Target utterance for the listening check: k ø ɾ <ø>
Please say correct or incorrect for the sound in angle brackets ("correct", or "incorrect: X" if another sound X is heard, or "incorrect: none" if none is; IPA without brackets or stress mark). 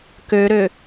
correct